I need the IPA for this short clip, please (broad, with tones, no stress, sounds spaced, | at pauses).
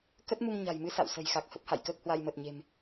k ə˦˥ t̚ m u˧ ŋ ɲ a̤˨˩ j m ɨ˨˦ s a̰˧˨ w s ə̤˨˩ j x a˨˩ k̚ h ə˦˥ p̚ h a̰˧˨ j k əː˦˥ k̚ h w a˧ j m əː˨˩ t̚ ɲ e̤˨˩ m